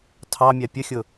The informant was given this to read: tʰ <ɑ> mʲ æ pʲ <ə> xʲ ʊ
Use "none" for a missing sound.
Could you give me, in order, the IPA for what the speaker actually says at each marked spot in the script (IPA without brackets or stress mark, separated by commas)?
ɑ, ə